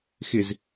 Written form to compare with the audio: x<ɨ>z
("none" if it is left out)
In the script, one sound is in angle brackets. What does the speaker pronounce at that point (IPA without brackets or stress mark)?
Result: ɪ